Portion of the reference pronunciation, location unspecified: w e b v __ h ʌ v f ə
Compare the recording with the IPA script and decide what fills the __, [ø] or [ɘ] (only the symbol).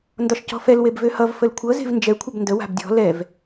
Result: ø